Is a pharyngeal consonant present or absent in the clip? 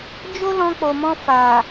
absent